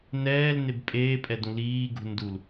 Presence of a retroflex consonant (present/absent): absent